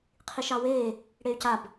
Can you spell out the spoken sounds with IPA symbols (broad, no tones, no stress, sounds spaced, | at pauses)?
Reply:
qʰ i ʃ ɑ w eː | ɽ e y̯ c a b